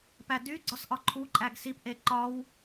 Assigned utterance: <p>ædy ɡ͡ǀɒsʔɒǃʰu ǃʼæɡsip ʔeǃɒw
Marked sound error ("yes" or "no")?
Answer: no